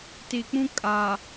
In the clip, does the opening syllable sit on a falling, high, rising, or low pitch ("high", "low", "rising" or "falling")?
low